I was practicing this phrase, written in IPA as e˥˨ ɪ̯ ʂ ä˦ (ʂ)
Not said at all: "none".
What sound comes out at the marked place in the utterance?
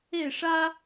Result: none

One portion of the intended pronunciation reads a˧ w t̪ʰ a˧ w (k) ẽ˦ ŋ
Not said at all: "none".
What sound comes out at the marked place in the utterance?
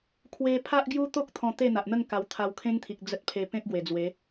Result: kʰ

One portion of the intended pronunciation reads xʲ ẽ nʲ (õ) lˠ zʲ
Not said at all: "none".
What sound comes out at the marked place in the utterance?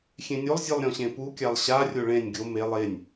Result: o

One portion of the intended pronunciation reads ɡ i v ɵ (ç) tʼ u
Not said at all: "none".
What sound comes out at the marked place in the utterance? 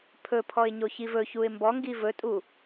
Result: none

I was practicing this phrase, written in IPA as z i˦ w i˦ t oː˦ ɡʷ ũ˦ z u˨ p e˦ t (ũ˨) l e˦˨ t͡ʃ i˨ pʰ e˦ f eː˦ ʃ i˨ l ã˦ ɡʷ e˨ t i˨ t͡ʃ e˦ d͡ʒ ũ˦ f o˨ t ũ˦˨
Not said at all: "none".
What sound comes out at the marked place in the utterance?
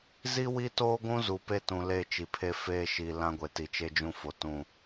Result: ũ˨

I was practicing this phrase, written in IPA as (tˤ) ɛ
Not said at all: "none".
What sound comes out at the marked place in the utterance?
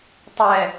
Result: tˤ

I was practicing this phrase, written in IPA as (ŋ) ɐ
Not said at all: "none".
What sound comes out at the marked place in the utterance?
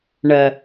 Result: ɳ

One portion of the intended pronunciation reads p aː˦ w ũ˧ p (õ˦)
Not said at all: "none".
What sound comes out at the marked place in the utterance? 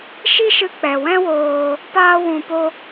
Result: o˦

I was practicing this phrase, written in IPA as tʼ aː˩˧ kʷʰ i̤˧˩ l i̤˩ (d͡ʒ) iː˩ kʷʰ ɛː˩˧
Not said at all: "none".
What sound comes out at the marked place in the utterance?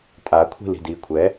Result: d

